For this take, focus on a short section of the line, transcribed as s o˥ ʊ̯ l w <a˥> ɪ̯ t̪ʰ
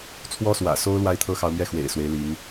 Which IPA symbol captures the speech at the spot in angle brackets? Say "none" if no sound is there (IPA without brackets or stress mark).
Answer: a˥